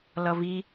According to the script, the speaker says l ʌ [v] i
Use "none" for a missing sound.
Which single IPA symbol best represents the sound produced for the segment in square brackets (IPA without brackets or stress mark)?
v